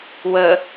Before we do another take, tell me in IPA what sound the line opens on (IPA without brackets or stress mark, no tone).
w